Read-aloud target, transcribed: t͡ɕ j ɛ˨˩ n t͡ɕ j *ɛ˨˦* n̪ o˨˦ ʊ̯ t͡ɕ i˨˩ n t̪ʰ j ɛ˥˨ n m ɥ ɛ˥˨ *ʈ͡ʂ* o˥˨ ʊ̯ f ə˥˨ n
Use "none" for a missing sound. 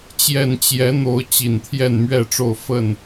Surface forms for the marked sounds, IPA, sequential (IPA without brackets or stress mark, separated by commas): ɛ˨˦, ʈ͡ʂ